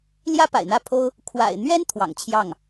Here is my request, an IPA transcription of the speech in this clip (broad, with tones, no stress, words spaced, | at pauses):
ljä˥pa̰˨˩ɪ̯n̪ä˥˩pʰo˥ʊ̯ | kʰwa̰˨˩ɪ̯n̪ɥɛ˥n t̪ʰwɑ̰˨˩ŋt͡ɕʰjɑ˥˩ŋ